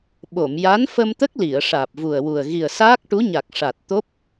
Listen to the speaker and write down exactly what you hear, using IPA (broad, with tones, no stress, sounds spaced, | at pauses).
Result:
ɓ o˨˩˨ m j a˧˥ n f ə˧ m t̪ ə˦˥ k̚ l i˨˩˨ ə̯ ʂ aː˨˩ p̚ v u˨˩ ə̯ w u˨˩ ə̯ ɣ i˨˩ ə̯ s aː˦˥ k̚ ʈ u˧˥ ɲ a˨˩ k̚ ʂ a˨˩ t̚ t̪ o˦˥ p̚